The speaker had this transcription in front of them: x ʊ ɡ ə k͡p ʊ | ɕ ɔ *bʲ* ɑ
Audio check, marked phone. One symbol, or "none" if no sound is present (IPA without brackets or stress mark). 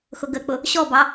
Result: b